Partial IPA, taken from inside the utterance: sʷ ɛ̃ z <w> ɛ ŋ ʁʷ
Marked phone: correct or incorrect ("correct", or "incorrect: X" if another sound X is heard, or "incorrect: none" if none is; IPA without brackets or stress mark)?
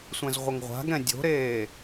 incorrect: ʁʷ